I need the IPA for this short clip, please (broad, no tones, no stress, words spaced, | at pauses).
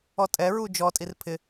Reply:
ɔtʼɛɹu d͡ʒɔtʼir pʰɪ